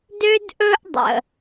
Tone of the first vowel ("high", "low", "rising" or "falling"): high